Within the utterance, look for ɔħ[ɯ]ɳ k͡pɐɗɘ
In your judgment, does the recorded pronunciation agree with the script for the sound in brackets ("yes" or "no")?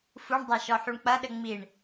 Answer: no